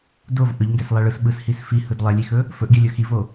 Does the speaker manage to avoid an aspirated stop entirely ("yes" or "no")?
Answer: yes